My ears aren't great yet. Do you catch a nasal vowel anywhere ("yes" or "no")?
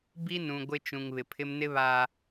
yes